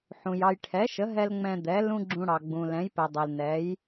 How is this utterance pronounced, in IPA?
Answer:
ħ ũ˩ j ɑ˧ j ʈʰ ɛ˩˥ ʃ ə˩˥ ɦ ɛ˧ l ŋ͡m ɛ̃˧ d̪ ɛ˩˥ l ũ˥ ɡ͡ǁ ũ˧ ɽ ɑ˩ ɡ͡b ũ˩ l ɛ̃˩˥ j p ɛ˩ dˤ ɛ˩ l n ɛ˩˥ j

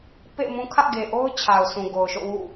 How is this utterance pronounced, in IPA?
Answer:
p ḛ˦˨ ɪ̯ m ũ˦ kʰ ä̰˦˨ ɡ e˨ ʔ o˦ ʊ̯ t͡ɕʰ a˨ ʊ̯ sʰ ũ˨ ɡ o˨ ʊ̯ ʃ o̰˦˨ w ṵ˦˨

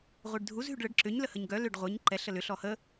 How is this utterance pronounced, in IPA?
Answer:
ʁʷ e ɖ dʱ u z ɦ y ɖ ɭ ə ɖ ǁ ʏ ɲ l ə h ə ɲ ɡ œ l ʏ ɖ ʁʷ e ɲ ǃ ɛ ɬ ə l ʏ ɬ ɔ h ə

